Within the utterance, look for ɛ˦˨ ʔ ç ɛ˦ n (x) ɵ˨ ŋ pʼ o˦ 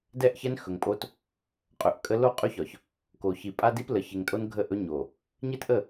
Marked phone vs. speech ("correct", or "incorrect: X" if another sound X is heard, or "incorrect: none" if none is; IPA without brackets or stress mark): correct